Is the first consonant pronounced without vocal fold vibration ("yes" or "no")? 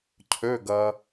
yes